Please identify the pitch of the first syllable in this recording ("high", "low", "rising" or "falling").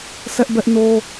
high